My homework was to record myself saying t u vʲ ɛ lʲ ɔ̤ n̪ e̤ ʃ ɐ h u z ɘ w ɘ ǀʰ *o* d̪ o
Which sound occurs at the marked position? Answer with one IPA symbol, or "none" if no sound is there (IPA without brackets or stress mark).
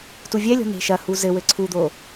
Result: u